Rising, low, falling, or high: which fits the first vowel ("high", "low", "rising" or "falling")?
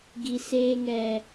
high